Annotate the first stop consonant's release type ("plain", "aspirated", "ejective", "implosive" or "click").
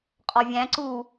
ejective